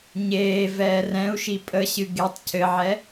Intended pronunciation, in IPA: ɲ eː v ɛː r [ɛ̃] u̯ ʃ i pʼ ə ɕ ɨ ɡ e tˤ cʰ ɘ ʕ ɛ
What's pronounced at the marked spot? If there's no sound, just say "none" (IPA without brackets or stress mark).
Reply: ɛ̃